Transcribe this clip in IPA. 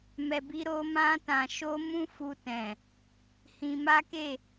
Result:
m ɛ˨ b i˧ ɾ o˧ m ã˧ t ã˨ ʃ o˧ m ũ˧ f u˧ t ɛ̃˨ | h ĩ˧ m a˦ k e˦˨

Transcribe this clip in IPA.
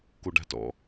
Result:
k o ɖ a̤ t ɔ̰

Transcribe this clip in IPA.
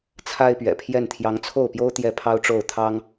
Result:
t͡sʰ a˥ ɪ̯ p ɥ ɛ̰˨˩ pʰ j ɛ˥˩ n t̪ʰ j ɑ˧˥ ŋ t͡sʰ o˥˩ ʊ̯ p j o˥ ʊ̯ t̪ j ɛ˥˩ pʰ ɑ˥ ʊ̯ ʈ͡ʂ o˥˩ ʊ̯ t̪ʰ ɑ˥ ŋ

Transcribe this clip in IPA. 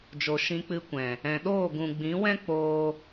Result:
d͡ʒ o˨ ʃ ĩ˧ k͡p ɨ˧ kʷ ɛ̃˨ | ɛ̃˨ ɗ oː˦˨ ɡ ũ˨ ɡ͡b ĩ˨˦ w ɛ̃˦ k͡p oː˦

